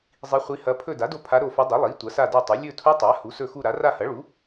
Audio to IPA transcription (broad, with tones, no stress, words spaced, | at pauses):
zˤi˧˥χʷi˧˥hɐ˧˥ pʰɵ˦˨da˩˥do˦˨ pʰa˧˥ɾo˦˨fɵ˧˥ dˤɐ˩˥ lˠi˩˥ tʷɐ˩˥sa˦˨do˦˨tˤɐ˩˥ lʲɵ˦˨tʰu˧˥ tˤa˩˥ hu˩˥sɵ˦˨xu˦˨ɾa˩˥ ra˦˨hɐ˩˥ɭu˩˥